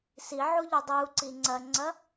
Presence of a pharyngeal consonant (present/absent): present